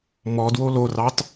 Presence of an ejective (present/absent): absent